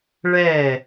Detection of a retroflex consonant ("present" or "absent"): present